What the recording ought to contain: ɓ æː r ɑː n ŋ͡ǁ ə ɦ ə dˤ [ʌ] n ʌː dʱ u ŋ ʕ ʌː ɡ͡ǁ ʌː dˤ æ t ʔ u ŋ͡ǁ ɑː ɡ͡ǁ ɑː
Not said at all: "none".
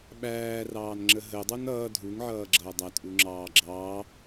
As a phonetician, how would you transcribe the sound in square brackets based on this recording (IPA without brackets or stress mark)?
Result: ʌ